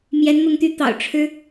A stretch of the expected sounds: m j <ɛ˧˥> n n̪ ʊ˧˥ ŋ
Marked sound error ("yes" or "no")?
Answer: no